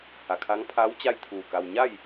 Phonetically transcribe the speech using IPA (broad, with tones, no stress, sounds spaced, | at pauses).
h a˩ kʰ a˧˥ ŋ pʰ a˧˥ w t͡ɕ a˥˨ j t̪ʰ uː˧˩ k a˧ w ɲ a˥˨ j